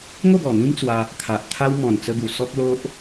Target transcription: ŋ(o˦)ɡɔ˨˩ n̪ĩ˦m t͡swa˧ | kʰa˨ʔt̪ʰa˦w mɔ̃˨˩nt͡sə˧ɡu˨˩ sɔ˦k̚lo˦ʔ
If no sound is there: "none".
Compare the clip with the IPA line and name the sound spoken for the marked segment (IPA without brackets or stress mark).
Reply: o˥˧